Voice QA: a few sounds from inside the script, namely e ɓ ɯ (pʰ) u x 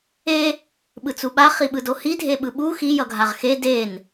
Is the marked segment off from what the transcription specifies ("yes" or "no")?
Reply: yes